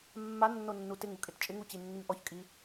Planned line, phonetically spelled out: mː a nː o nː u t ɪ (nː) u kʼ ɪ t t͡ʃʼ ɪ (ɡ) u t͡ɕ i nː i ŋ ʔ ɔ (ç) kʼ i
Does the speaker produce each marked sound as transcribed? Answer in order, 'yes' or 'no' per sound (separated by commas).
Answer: no, no, yes